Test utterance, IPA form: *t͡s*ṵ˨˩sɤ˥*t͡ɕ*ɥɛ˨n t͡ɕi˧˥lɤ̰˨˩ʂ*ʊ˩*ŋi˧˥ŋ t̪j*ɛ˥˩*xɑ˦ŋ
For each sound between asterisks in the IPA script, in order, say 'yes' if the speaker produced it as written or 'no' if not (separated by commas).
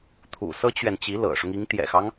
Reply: no, yes, no, no